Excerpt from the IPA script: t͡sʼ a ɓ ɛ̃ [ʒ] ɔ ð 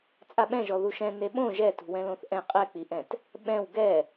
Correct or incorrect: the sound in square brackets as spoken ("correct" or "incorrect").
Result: correct